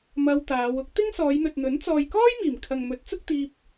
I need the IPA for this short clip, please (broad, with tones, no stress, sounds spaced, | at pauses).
m ɐ˧ w t̪ aː˨˧ w ʊ˥ k̚ t̪ ɪ˥ ŋ s ɔː˨˧ j n̪ ɵ˨ t̚ n̪ ɵ˨˥ n t͡s ɔː˨ j k ɔː˥ j m iː˨˩ m kʰ ɐ˨ ŋ m ɵ˨˥ t̚ t͡s ʊ˥ k̚ t̪ iː˧ p̚